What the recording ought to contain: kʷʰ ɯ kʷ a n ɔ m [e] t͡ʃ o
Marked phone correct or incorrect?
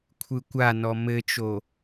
incorrect